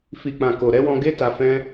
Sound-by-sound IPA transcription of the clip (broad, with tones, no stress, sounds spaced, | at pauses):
f i˨ k͡p ã˨ k o˨ ɾ ɛ˨˦ w ɔ̃˧ ɡ e˦ t a˧ f ɛ̃˦